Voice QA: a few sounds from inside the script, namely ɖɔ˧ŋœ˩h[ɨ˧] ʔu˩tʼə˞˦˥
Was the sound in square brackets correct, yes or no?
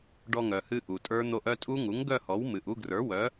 yes